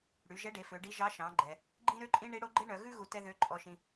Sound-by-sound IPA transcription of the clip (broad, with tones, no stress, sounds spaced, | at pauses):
ɽ y˩˧ ʒ ɛ˧˥ ɖ e˩˧ f ø˩˧ ɖ i˧˥ ʒ ɑ˧˥ ʃ ɑ̃˩˧ ɡ͡ǃ ɛ˩ | ɡ͡ǃ ĩ˥ ɾ ø˥ ǃʼ ĩ˥ ɳ i˧˥ ɽ o˧˥ ɡ͡ǃ e˥ ɳ œ˩˧ ɣ ʉ˥ ɣ u˧ t ɛ˥ ð ø˧˥ ǃʼ ɔ˧ ʃ ĩ˧